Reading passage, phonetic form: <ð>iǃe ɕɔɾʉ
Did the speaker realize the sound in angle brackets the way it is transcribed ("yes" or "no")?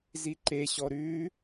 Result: no